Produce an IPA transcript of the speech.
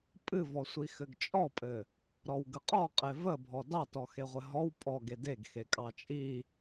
pʼ ɨ v ɔ sʷ i x ɘ ɡ t͡ʃʼ ɔ pʼ ɘ | ɾ ɔ w ɡ ə qʼ ɔ qʼ e v ə bʱ ɔ d ɑ t ɔ x e ʁʷ ɘ ɦ ɔ w pʼ ɔ ɡ e d e ɡ x e kʼ ɑ t͡ʃʼ i

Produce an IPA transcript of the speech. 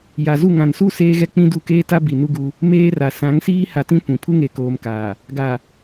j a˨ z u˦˨ ŋ ã˨ n s u˦ s eː˦ ɣ ɛ˦ k͡p ĩ˦ d u˦˨ k eː˦ t a˦ b i˨ n u˦ ɡ u˦ | m eː˦ r a˨ s ã˨˦ ŋ s iː˦ h a˨ t ĩ˦ kʷ ĩ˨ pʰ u˦ ŋ e˨ k oː˨ m k aː˨ | ɡ a˨

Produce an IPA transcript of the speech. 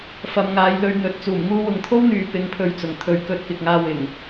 f ɐ˨˧ m ŋ aː˨˧ j l ɵ˧ ɥ n̪ ɵ˨ t̚ t͡s uː˨˩ m ŋ uː˧ w ʊ˨ ŋ t̪ʰ o˥ w n̪ yː˨ p ɪ˧ ŋ pʰ ɵ˧ ɥ t͡s ʊ˨ ŋ t̪ʰ ɵ˨˧ ɥ k ɵ˧ t̚ k ɪ˨ k̚ ŋ aː˧ w ɪ˨˩ ŋ

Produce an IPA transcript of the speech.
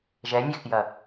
ʒ ɛ nʲ ɛ x j ɐ

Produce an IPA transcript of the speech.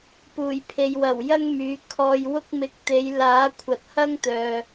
p uː˨˩ j pʰ e˨ j w ɐ˨˩ w j ɐ˥ ŋ m yː˨˧ kʰ ɔː˧ j w ʊ˥ k̚ m ɪ˧ k̚ t̪ e˨˧ j l aː˨˥ kʷʰ ɐ˨ t̚ h ɐ˥ ŋ t̪ œː˨

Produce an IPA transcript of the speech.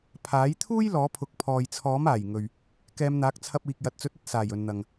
pʰ aː˨˥ j t̪ʰ uː˥ j l ɔː˨˥ pʰ ʊ˨˥ k̚ pʰ ɔː˨ j t͡sʰ ɔː˨˥ m aː˨˩ j ŋ ɵ˨ ɥ | k ɛː˨˧ m n̪ aː˨˥ k̚ t͡sʰ ɐ˧ p̚ iː˨ k̚ j ɐ˨ t̚ t͡s ɵ˨˥ t̚ ɐ˨ t̚ s aː˨˩ j ɵ˨ n n̪ ɐ˨ ŋ

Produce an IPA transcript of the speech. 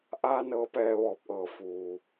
ʔ aː˧ n ɤː˧˥ p ɛː˧ ʋ ɔː˧˩ p̚ ʔ ɤː˧˩ f uː˩

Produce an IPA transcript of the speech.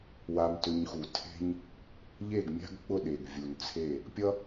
w a˧ m t ʏ˧ ɲ x u˩ tʰ e̤˥ ɲ | ʎ e˥˩ ɡ mʲ a̤˥ ɡ k͡p ʊ˥˩ ɗ e˩ ɡ vʲ u˩ n t͡sʰ e˥˩ | pʲ ʌ˥

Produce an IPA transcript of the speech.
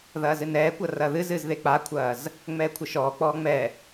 ð ɐː z ɨ n ɛː kʷ ɐ r ɐ ð ɨ z ɨ z ð e k͡p a kʷʰ ɐː z | ŋ͡m ɛː kʷʰ ɘ ʃ ɔː k͡p ɔː ŋ͡m ɛ

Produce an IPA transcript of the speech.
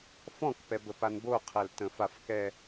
f ɔ̃ k p ɛ b ə p a n b o qʰ ɛ l t ə̃ f a f k ɛ

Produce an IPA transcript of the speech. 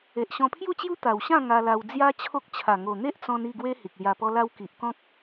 e˨ ʔ ɕ ɔ̃˧ pʰ j u˥˧ t͡ɕ j u˦ t̪ a˨˩ w ɕ ã˥˧ ŋ a˧ l a˧ w d͡z j a˦ t͡ɕʰ o˦ k̚ t͡ɕʰ a˨˩ ŋ o˨˩ n̪ e˦ ʔ t͡s ɔ̃˧ n i˥˧ ɡ w e˦ h i˨ k̚ l j a˧ p ɔ˦ l a˦ w k i˨ ʔ k ɔ̃˦ k̚

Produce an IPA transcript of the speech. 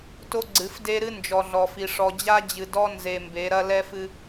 t o˦ ɡ͡ǀ ɨ˨˦ f d e˦ ɾ ɨ˦ n d͡ʒ ɔ˨ ɮ ɔ˨ f i˨ ʂ ɔ˨ d͡ʑ a˦ d͡ʑ ɨ˨ d ɔ˦ n z e˨ m b e˨˦ ɾ ɐ˦ l ɛ˦ f ɨ˦

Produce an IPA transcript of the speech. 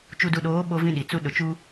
t͡ʃ u˨ d u˨ ɗ oː˨˦ ɓ o˦ v ĩ˦ ɗ i˨ t͡s u˦ ɗ ʊ˨ t͡ʃ u˦

